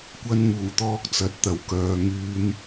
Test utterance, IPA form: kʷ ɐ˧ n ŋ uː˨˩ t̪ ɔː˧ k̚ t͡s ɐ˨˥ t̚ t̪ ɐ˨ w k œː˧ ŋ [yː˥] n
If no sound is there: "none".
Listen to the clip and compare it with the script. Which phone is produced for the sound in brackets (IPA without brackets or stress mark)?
yː˥